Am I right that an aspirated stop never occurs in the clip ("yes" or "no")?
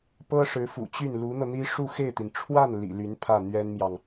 no